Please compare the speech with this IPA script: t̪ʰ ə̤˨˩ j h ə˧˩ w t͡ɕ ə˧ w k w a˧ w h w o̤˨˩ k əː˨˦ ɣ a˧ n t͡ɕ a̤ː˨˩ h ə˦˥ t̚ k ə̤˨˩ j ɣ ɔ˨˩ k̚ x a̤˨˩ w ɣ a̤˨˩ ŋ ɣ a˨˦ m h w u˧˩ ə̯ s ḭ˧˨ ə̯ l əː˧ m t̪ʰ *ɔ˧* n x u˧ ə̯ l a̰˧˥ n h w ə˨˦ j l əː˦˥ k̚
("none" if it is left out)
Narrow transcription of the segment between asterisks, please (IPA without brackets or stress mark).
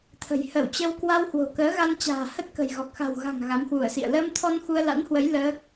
ɔ˧